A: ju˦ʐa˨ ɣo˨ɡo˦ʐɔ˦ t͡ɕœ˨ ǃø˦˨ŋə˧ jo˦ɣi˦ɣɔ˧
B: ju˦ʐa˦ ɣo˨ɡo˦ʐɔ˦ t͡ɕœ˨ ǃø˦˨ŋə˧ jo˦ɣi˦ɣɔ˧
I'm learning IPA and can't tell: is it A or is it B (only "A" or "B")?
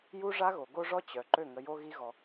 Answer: B